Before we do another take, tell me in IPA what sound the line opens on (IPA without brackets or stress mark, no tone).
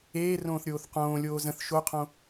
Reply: eː